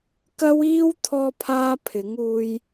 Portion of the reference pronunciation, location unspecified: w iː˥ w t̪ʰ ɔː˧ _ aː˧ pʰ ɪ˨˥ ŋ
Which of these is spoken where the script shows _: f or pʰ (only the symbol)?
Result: pʰ